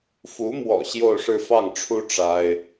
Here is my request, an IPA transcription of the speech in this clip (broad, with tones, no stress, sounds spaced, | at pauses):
f u˧˥ m w ɔ̰˨˩ ɕ j o˥˧ ʊ̯ ʂ ɻ̩˥˧ f ɑ˥˩ ŋ ʈ͡ʂʰ u˥ ʈ͡ʂ a˥ ɪ̯